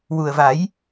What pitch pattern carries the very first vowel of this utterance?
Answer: low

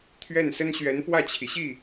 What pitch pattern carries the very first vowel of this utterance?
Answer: falling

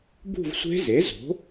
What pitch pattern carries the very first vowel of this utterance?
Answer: falling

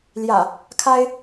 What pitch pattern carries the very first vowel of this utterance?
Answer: low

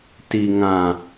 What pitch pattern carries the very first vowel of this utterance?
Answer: low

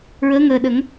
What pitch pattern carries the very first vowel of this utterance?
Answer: rising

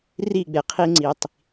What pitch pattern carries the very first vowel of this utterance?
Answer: falling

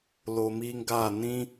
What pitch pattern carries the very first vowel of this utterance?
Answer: low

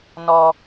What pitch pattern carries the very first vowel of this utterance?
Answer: low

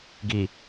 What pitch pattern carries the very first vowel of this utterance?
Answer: low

